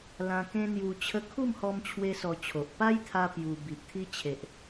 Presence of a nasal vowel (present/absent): present